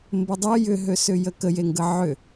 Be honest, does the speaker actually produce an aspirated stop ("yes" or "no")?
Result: no